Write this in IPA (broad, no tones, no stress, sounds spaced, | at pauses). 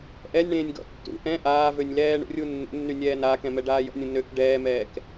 ʔ ɛ nʲ ɳ ẽː nʲ ɡ ɔ̰ tː ṵ ʔ ɛ̃ ʔ aː v ø nʲ l ɛː ɳ ṵ rʲ u nː ṵ nː y nʲ ɛː n aː k ɛ̃ m ɛ ɖ aː j ɔ̰ nʲ ũ n ø k ɖ ɛː m ɛː k